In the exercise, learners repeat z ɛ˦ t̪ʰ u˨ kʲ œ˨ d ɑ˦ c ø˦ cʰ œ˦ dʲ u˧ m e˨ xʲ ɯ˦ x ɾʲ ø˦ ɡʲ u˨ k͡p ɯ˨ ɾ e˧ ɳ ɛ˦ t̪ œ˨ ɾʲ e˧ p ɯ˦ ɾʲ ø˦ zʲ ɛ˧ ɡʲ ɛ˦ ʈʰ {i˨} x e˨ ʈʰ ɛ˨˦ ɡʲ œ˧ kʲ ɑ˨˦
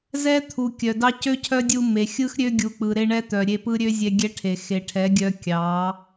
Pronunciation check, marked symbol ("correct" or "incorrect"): incorrect